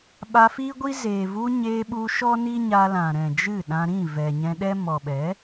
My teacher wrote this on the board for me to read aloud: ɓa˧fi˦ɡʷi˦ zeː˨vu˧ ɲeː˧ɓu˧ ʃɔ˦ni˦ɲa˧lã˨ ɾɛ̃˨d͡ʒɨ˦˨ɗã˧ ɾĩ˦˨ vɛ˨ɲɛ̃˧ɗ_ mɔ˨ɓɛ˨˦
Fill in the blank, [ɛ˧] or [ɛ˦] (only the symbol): ɛ˦